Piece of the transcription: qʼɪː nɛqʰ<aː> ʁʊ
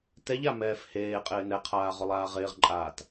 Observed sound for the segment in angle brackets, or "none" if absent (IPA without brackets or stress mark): aː